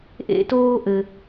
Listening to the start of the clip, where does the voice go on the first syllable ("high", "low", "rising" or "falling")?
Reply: high